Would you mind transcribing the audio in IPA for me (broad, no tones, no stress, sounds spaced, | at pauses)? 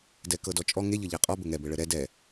d ɛ k ɤ d ɔ t͡ʃʼ ɔ ŋ e ʎ ɤ ʎ æ qʼ ɔ b ɘ ŋ ɛ b ɘ ɭ ɘ ɾ ɛ d ɛ